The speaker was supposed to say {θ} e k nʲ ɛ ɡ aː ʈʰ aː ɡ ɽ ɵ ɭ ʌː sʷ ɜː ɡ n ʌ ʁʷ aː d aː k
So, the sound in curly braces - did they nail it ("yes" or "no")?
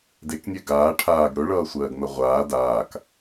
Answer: no